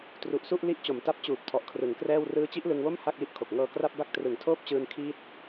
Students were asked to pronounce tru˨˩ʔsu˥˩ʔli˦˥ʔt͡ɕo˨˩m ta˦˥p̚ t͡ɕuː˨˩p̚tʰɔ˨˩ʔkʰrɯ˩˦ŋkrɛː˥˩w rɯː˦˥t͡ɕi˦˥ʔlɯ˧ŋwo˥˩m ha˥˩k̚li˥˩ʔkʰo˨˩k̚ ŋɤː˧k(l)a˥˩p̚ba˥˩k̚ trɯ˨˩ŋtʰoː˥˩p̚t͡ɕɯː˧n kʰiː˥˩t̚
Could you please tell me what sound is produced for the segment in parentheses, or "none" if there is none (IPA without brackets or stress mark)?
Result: r